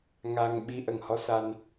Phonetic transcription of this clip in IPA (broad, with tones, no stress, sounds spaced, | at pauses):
ŋ a˧ ŋ ɓ i˧˥ ʔ ə˨˩ ŋ h ɔ˧˥ s a˧ n